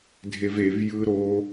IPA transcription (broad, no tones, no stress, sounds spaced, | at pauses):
dʱ e v e v j ɯ ɾ o